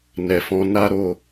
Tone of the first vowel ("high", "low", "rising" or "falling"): low